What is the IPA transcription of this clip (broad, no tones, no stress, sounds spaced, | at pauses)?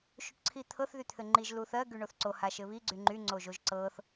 ʃ u ʈ ǀʰ i t̪ʰ ɤ θ ð y t̪ʰ ɘ ŋ͡ǃ i ʒ l u θ ɜ ɡ y ɳ o θ ǀ o h a ʃ ɘ β i ɡ͡ǀ y ŋ͡ǃ y ŋ͡ǀ o ʒ o ʒ ǀ ɤ θ